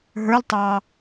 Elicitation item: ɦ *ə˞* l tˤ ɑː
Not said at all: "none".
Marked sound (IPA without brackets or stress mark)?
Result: ə˞